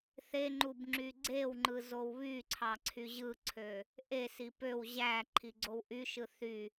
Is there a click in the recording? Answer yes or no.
yes